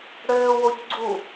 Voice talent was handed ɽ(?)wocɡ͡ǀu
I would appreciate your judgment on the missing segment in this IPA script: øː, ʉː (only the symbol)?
øː